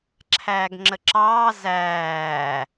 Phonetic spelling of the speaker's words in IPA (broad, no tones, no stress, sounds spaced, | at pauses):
ǁʰ æː ɡ ŋ͡ǁ ə ǁ ɑː z æː